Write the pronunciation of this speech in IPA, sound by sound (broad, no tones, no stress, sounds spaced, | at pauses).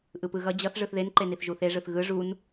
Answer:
ʔ ɯ p ɯ ɣ ʌ d͡ʑ ʌ θ ʐ ɯ θ ð e n ǃ e n i θ ʒ u θ e ʐ ɯ θ ɣ ɯ ʐ u n